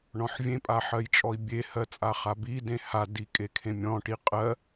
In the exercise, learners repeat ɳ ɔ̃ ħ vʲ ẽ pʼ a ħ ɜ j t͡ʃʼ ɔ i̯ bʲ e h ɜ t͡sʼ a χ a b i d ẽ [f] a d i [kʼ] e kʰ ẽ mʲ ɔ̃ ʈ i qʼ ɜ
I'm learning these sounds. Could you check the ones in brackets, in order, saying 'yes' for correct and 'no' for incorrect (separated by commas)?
no, yes